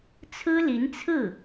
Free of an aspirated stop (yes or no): no